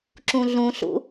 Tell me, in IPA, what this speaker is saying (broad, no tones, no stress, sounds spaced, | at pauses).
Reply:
ǁ ũ ɮ ũ ɬ ṵ